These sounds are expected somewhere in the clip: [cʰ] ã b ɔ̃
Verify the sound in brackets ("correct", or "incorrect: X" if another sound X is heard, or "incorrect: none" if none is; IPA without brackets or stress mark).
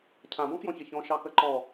correct